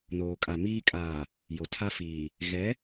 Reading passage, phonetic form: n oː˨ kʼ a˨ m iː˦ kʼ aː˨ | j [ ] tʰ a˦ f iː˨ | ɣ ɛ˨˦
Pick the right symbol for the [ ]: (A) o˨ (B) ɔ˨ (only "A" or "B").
A